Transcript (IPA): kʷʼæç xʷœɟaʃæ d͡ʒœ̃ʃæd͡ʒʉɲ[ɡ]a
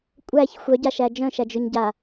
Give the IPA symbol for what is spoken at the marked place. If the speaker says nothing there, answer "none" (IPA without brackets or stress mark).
ɟ